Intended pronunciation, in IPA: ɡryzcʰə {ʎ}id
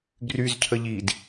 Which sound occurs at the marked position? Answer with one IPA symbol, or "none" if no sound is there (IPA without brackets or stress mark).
ʎ